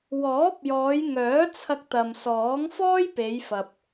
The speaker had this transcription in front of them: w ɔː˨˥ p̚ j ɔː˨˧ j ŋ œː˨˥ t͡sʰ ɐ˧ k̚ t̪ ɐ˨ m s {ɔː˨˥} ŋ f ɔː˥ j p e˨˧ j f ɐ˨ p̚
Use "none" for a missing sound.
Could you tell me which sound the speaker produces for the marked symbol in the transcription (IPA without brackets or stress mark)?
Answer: ɔː˨˥